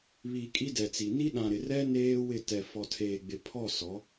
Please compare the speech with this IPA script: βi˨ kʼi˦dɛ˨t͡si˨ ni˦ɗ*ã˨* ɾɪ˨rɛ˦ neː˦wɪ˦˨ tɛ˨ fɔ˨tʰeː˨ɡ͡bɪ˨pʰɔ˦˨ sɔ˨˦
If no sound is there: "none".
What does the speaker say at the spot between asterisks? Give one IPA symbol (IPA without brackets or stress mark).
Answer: ã˨